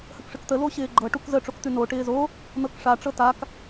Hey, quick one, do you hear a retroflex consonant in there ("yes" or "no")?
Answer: yes